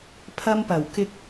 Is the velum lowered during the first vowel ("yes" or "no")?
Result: no